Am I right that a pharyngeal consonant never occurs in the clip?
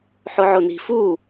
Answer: no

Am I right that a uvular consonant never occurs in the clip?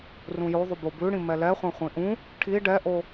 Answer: no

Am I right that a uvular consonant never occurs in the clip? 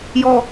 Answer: yes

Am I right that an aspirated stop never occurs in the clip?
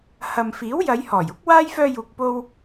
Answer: yes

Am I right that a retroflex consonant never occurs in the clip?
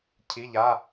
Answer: yes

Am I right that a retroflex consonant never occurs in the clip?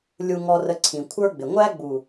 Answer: yes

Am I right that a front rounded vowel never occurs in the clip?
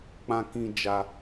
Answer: yes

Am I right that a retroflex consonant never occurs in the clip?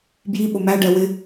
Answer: no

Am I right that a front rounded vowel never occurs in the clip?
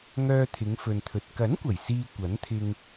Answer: no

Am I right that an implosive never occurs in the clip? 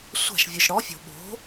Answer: no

